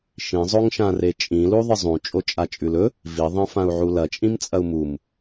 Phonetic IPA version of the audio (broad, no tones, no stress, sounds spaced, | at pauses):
ʃ ĩ zˤ o ŋ ʃ ã r e t͡ʃʼ ĩ l u ðˤ ɨ zˤ ũ t͡ʃʼ o t͡ʃʼ a t͡ʃʼ ʉ l ɵ | v i ðˤ ẽ f ã u̯ ʕ u l ɐ t͡ʃʼ ĩ m t͡sʼ ɐ u̯ m u m